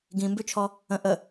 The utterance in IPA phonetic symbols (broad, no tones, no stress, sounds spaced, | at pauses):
ɡ ĩ m b ʉ t͡ʃʰ ɔ | ə̃ ʔ ə